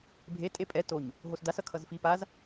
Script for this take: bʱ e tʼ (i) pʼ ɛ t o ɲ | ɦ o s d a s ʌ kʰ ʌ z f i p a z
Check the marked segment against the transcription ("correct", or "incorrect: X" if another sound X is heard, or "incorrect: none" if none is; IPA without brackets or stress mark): incorrect: e